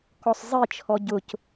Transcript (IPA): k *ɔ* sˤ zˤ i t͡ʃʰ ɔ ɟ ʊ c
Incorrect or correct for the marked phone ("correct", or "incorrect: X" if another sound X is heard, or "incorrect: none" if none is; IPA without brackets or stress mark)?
correct